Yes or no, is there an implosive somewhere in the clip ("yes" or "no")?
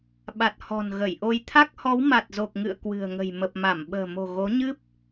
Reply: yes